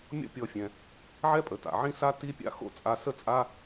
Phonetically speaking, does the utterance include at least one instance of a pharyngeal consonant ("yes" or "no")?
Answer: yes